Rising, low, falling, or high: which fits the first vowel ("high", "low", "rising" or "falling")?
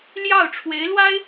falling